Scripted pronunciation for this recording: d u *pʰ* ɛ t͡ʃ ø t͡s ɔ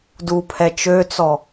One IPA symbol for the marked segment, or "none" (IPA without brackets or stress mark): pʰ